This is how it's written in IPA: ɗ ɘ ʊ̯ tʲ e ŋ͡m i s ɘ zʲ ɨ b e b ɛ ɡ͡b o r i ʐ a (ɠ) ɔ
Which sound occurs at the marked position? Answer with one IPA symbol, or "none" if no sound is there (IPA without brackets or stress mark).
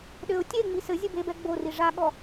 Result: ɠ